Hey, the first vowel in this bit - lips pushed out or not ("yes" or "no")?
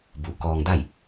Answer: yes